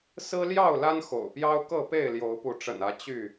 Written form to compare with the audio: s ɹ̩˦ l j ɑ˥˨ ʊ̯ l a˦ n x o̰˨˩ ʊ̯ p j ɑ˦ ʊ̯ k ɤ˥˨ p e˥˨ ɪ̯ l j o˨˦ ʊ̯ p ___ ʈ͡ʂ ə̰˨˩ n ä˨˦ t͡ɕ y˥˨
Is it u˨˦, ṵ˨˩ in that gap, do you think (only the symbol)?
u˨˦